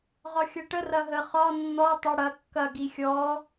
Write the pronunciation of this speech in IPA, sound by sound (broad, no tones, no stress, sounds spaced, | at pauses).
ʁ ɒ xʲ ɐ ʈ ə r ɐ ɦ ə χ ɒ nː ɔ tˤ ɛ ɽ ɐ kː ɐ ɡ i xʲ ɔ